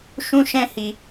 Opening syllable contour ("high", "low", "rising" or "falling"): high